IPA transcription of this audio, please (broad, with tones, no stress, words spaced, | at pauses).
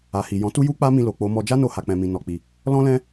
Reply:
a˨ hi˨jɔ̃˨˦ tu˦ju˦k͡pa˦mĩ˧ lo˨k͡po˨˦mɔ˧ d͡ʒa˦no˧ ha˨k͡pɛ̃˨mĩ˨ nɔ˨k͡pi˨ | lɔ̃˦lɛ̃˦